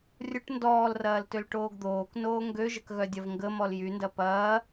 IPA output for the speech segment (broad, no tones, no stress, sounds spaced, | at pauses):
rʲ ʊ ʈ n d ɔː l r ɐː l t ø l ʈ oː ɡ d̪ oː k n oː ŋ ɡ ø ʒ ə k ɣ œ dʲ ɐ v ŋ ɡ ə m ɔ l j y n d ɐ p ɐː